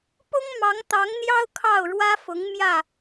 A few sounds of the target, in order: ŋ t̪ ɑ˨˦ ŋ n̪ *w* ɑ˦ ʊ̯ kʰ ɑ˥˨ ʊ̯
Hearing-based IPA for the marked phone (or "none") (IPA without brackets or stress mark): j